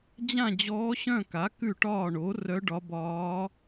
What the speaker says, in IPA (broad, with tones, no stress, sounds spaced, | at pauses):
d͡ʑ ã˥˨ d͡ʑ ɔː˧˥ ɕ œ̃˥˨ k a˩˥ k ʉ˥˨ ʈ ɒː˥˨ ɳ o˩˥ r œ˧˥ ɖ ɒ˧˥ b ɒː˧˥